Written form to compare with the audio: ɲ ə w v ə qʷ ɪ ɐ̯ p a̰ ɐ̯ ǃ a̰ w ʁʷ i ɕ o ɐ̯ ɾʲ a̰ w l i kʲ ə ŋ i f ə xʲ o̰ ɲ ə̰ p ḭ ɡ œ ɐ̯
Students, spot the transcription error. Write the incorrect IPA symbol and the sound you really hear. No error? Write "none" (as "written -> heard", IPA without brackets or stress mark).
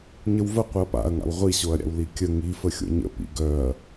ǃ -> ŋ